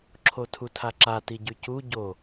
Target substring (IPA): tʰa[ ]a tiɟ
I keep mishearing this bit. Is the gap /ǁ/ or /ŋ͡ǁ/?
ǁ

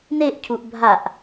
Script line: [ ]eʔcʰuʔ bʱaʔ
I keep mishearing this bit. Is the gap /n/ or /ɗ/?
n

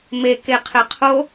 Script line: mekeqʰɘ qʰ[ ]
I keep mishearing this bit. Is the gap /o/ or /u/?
o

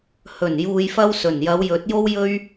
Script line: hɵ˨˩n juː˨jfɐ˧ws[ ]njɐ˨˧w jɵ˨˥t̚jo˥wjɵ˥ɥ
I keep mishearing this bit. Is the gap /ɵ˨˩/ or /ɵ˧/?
ɵ˨˩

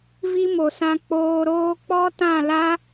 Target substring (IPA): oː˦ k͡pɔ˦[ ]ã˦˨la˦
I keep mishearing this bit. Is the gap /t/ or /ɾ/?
t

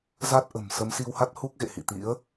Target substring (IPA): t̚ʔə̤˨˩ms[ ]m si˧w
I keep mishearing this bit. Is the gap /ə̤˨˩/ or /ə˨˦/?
ə˨˦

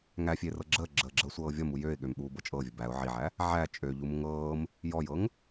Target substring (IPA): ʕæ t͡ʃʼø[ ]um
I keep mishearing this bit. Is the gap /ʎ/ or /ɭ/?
ʎ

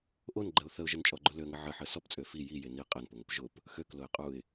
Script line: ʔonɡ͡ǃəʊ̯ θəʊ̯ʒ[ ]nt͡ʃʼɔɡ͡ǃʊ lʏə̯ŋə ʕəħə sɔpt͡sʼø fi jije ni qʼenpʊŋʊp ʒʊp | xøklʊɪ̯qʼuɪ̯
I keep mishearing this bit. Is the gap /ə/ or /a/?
ə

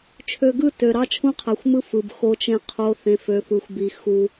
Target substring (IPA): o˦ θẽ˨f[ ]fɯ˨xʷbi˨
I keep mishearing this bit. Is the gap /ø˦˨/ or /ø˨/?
ø˨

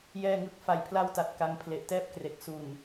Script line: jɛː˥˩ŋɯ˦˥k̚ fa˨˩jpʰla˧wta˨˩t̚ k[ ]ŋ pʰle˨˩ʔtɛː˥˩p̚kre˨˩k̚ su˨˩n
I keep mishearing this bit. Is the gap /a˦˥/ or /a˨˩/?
a˦˥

